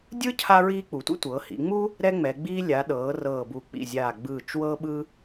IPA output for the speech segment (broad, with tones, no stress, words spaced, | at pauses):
dʲɯ˥ cʰa˥ɹiː˥ k͡pu˩˧tʷḭ˥ tʷɤː˩˧hḭ˩˧ŋ͡mu˥ | ɾɛ˥ŋ͡mɛ˩˧ɡ͡biː˥ lʲa˩˧ ɗɤː˩˧rɤː˨˩bu˨˩ k͡pḭ˨˩zʲaː˨˩ ɡ͡bɯː˨˩t͡ʃ wɤː˥ɓɯ˥